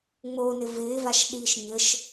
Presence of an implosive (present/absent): present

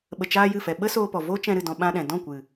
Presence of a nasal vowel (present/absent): present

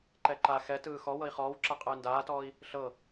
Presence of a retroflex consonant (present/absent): absent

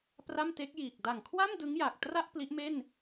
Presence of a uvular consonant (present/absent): absent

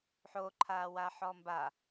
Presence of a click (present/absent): present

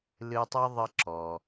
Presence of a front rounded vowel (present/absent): absent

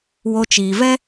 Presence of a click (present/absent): absent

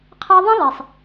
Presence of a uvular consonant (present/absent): present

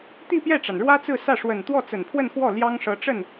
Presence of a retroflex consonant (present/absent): present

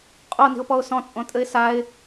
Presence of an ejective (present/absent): present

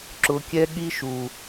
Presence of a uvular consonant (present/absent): absent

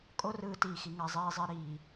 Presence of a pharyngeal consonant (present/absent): absent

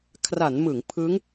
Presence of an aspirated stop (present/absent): present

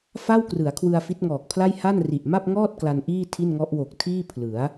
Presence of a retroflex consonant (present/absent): absent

